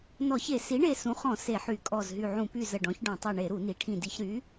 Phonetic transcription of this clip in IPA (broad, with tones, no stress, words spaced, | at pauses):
nɔ˧˩˧çe˧˩˧ si˩˥ɳe˧˩ sũ˩˥χɔ̃˧˩˧ se˧˩˧ħy˧˩˧kʼɔ˧˩zɦy˧˩ ʕũ˧˩˧py˧˩ zə˧˩ɖɔ̃˩˥ç ɖɔ̃˧˩˧tˤu˧˩ ɳe˧˩˧ɾu˧˩˧ni˩˥ʈʰĩ˧˩ di˧˩˧çɾy˩˥